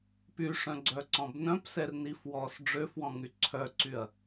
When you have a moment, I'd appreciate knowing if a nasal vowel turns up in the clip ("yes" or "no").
yes